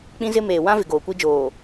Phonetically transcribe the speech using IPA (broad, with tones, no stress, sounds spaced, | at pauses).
k͡p ĩ˦ z ɪ˦ m eː˨ w ã˦ v ɪ˨ ɡ oː˨ kʷ i˦ d͡ʒ oː˨